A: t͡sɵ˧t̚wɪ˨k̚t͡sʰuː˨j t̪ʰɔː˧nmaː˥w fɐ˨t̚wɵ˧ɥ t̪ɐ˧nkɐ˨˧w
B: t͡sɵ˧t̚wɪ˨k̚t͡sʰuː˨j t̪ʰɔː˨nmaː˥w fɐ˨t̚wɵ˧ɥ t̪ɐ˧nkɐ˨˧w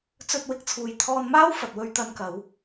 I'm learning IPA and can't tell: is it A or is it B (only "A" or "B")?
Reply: A